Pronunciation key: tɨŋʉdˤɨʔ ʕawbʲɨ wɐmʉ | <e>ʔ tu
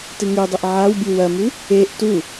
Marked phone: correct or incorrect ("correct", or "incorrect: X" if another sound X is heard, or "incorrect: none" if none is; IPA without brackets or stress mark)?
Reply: correct